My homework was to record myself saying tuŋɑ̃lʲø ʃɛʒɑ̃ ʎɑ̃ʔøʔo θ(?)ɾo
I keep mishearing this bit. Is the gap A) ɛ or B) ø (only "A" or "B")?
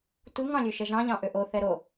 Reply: A